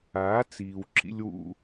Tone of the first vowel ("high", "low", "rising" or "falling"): rising